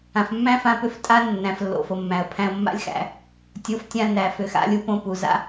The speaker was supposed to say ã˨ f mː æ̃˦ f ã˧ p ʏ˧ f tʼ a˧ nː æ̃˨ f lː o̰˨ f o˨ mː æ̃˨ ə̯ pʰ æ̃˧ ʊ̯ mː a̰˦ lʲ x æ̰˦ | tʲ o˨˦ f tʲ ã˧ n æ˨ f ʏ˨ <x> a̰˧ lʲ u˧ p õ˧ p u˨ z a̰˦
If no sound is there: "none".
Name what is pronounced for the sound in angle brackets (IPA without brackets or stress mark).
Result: x